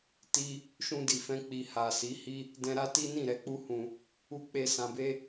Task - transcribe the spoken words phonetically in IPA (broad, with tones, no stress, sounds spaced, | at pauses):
t i˦ | ʃ ũ˧ d i˨ f ɛ̃˧ k͡p i˨ h a˨ s i˨˦ h i˦ | d ɛ̃˧ ɾ a˦ t i˦ n ĩ˦˨ ɾ ɛ˧ k͡p u˦ h ũ˧ | u˧ k͡p e˧ s ã˧ b e˦